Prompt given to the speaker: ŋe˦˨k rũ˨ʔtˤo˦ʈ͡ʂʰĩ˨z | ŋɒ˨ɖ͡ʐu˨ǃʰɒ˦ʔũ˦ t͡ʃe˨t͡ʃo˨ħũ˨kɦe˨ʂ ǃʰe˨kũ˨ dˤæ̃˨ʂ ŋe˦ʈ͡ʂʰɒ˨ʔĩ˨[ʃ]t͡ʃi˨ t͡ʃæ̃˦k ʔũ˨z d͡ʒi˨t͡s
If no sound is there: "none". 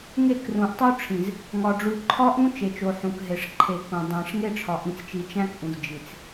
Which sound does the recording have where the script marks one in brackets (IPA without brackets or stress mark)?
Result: t͡s